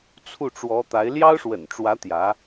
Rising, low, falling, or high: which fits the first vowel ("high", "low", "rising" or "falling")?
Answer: falling